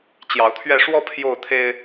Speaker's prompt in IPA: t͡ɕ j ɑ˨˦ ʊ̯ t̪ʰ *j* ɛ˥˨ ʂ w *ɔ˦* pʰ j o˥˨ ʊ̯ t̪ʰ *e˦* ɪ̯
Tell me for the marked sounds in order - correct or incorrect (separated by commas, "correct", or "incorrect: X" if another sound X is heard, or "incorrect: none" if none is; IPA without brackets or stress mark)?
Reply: incorrect: ɥ, correct, correct